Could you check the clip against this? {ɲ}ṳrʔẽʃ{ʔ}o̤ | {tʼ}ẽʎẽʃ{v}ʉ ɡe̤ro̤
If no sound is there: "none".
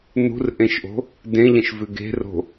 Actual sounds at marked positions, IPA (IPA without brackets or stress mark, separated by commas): n, ʔ, d, v